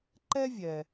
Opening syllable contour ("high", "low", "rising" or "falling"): high